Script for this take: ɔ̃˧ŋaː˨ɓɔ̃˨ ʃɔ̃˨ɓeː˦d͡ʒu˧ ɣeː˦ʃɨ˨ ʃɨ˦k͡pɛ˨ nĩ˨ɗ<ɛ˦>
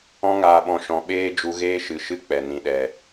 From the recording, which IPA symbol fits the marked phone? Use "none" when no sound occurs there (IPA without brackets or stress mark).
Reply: ɛ˨